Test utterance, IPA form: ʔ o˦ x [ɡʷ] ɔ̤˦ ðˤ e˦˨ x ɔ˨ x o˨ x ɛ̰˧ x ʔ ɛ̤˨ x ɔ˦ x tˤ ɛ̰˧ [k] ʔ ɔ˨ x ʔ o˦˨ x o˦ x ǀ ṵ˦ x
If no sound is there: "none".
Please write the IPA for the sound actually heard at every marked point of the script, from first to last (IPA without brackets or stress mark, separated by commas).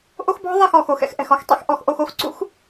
b, x